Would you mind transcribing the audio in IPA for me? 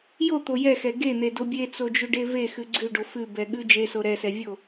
j o t̪ o j ɛ x ɛ ɡ e n̪ e d o bʲ e t͡s o d͡ʒ ʉ ɖ e v e x ʉ ɡ͡ǀ ʉ ɖ o f ʉ b ɛ ɠ ʉ d͡ʒ e s o ɾ ɛ s ɛ vʲ o

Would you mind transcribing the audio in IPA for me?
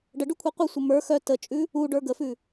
ɖ ə ɖ ʉ kʷʰ ɛ qʷ ə sʷ ə m ə˞ x œ t ə t͡ʃʼ ʉ | u ɖ ə˞ ɡ ə f ʉ

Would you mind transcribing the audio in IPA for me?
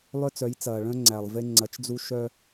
lˠ œ˦ t͡s œ˨˦ j t͡s ɐː˨ ɭ œ̃˦ ŋ͡ǀ æ˨ lˠ v e˦ ŋ͡ǀ ɐ˨˦ t͡ʃ d͡z u˦ ʃ œ˦

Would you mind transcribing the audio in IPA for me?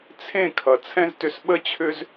t͡sʰ ẽ˦˨ kʰ ʌ˨ t͡sʰ ɛ̃˦ z t ʏ˧ s ɓ ə˦ t͡ɕʰ ʏ˦ z

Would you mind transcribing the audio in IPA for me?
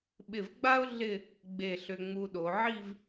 ɓ ɪ˧˩ v ɡ͡b a˥ ʊ̯ ɮ ɪ˥˧ | ɡ͡b e˧˩ ɬ ʏ˧ ŋ͡m u˧ ɗ o˩˧ ʕ i˥˧ v

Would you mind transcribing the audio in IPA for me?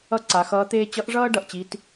ʌ˥ ǀ a˩˧ x ʌː˧˥ t̪ eː˥ t͡ɕ ʌ˧˥ ʔ ʐ ʌː˥ ɖ ʌ˩ ʔ t͡ɕ i˧˥ t

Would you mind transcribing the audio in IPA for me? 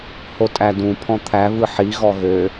h o tʼ æ d ũ pʰ ɔ̃ t̪ʰ æ v ɯ ħ i ɣ ɔ ɣ ø

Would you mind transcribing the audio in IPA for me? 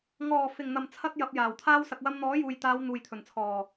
ŋ ɔː˨˩ f ɪ˨˩ ŋ n̪ ɐ˨˩ m t͡sʰ ɐ˧ t̚ j ɐ˧ p̚ j aː˨˩ w t̪ʰ aː˥ w s ɐ˨ k̚ w ɐ˧ m n̪ ɔː˨˥ j uː˨ j t̪ aː˨˧ w n̪ uː˨ j t̪ʰ ɵ˨˩ n t͡sʰ ɔː˨˩

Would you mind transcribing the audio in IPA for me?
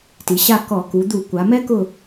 t i˩˧ ɕ a˦˨ k ɔ˧˩˧ k u˩˧ d̪ u˧˩˧ kʷ a˩˧ m ɛ˦˥ k ʊ˦˨

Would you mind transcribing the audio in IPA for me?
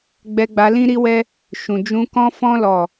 ɡ͡b ɛ˧ ɡ͡b a˧ l ĩ˦ ɾ i˦ w ɛ˦ | ʃ ũ˨ d͡ʒ ũ˧ k ɔ̃˦ f ɔ̃˦ l ɔ˦˨

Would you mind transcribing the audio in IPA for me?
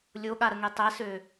lʲ o ɠ a ɾ ə ŋ e tˤ ɛ s ø

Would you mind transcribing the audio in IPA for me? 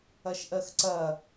ɐ ʃ ʔ ɜ x ǀ ɐ

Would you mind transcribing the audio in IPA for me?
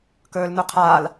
k ɵː l n u qʰ aː l

